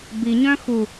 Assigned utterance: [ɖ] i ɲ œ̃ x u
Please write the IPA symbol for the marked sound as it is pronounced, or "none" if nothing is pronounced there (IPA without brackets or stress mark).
b